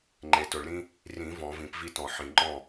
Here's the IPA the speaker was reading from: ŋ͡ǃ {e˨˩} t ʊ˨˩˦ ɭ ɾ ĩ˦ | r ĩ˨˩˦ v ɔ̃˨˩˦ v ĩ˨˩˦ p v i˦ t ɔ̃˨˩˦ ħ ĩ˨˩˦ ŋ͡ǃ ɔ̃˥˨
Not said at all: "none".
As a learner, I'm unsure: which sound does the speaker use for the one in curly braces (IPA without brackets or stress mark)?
e˨˩